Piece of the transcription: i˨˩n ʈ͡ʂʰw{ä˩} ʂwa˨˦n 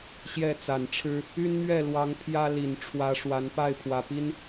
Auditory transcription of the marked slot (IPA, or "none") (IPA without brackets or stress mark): ä˨˦